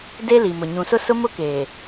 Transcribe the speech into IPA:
d e˦ l i˨ m ʊ˨ ɲ ũ˨ s ʊ˦ s ʊ˦ m ʊ˦ k eː˨

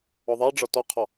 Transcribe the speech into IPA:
ɔ ðˤ a ɖ͡ʐ ɒ t ɔ qʰ ɔ

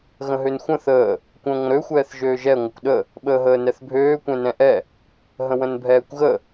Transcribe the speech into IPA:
ɣ ə̃ ɦ ø n xʷ ə̃ θ əː | kʷ ə̃ː ŋʷ ə̃ ɾ ø xʷ ɛː θ ʒ øː ʒ ɛ ŋʷ ə kʷ ɗ ə | ɓ əː ɦ əː n ɛ θ bʱ øː kʷ ɛ̃ n ɛ̃ ʔ ɛ | ɦ ə̃ w ə̃ n bʱ ɛː kʷ ɣ ə

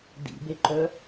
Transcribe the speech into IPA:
d ḭ b e ǃ œ

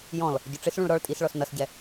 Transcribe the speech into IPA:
j ɔ̃ l | ɟ ʊ ʈ͡ʂ ɪ s ɭ ũ ɭ ɾ ɔ ɭ tʼ i s ɭ ɔ s n ʌ s ɟ ɛ

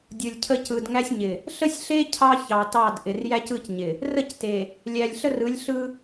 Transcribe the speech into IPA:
dʲ ɯ˨ lʲ cʰ ə˦ c ɯ˨ d ŋ æ˦ sʲ ɲ ɪ˨ | ɬ ə˦ sʲ ɬ e˦ cʰ ɑ˦ ç ɑ˨ t ɑ˦˨ d ʔ ɪ˨ r j æ˦ c ɯ˦˨ c ɲ ɪ˨ | r ə˦˨ c t e˨ | lʲ æ˨ lʲ ɬ ə˦ r ɯ˨˦ lʲ ɬ ɯ˦

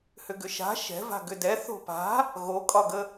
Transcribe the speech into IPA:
h ʏ ɡ ʏ ʃ a̤ ʃ ɛ̤ v a̤ ɡ ʏ d ɛ θ o̤ p a̤ | ɣ o kʼ ɒ ɡ ə

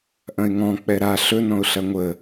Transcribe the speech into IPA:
ʔ ɐ̃ ɪ̯ ŋ ɔ̃ k͡p ɛ ɾ a ɬ ɵ n ɔ̃ ʊ̯ ɬ ɐ ŋʷ ə

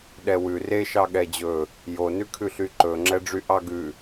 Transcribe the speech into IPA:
ɗ ɛ w ʉ r e ʃ ɑ ɠ ɛ d͡ʑ ɵ | j o n ʉ kʰ ʉ ɬ y ǃ ɵ ŋ͡ǁ ɛ ɖ͡ʐ y ʔ ɑ ɡ ʉ

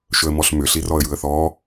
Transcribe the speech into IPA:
ʃ ɵ ə̯ m ɔ ɬ m ʏ ɬ i r ɔ ə̯ j ɯ ə̯ θ ɔ

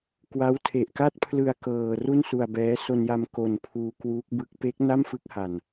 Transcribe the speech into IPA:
k w a˦˥ w tʰ e˨˩ ʔ k a˥˩ t̚ pʰ l ɯ˧ a̯ k ɤː˧ r u˥˩ n s u˧ a̯ b ɛː˦˥ s o˧ n j a˧ m k o˧ n pʰ uː˧ k w uː˦˥ k̚ b ɯ˦˥ k̚ p eː˦˥ k̚ n a˥˩ m f ɯ˦˥ k̚ h a˨˩ n

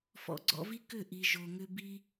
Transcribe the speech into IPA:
f ɔ̰˧ ɡ͡ǀ ɔ̰˧ v i˦ k ʏ˦˨ ʔ i˨ ʒ o˨ ŋ ʏ˧ b i˦

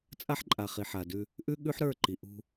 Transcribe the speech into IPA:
t͡sʼ a˦ ħ ǃʼ a˨ χ i˨ ħ a˨ d ʉ˦ | ʔ ʉ˦ ɠ ʉ˦ ħ ɾ ə˞˦˨ ǃ i˨ ʔ ṳ˦

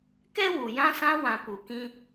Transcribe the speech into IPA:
k ɛ˦ w u˨ j ã˧ s ã˧ w ã˨ p u˨ k ĩ˧

